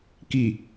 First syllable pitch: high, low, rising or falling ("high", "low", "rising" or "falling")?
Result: low